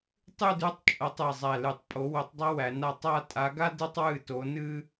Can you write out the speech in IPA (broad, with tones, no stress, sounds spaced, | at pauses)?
tˤ ʉ˥˧ d ʉ˥˧ tˤ t͡ʃʼ ʌ˥ tˤ ɨ˥˧ zˤ æ˥˧ l ɨ˥˧ tˤ pʼ o˧˥ w o˧˥ tˤ dˤ ʌ˥ w æ˧˥ n a˥ tˤ a˥˧ tʼ a˧˥ ɡ a˥ d ɨ˥ tˤ w ɨ˥˧ t o˧˥ n ɨ˥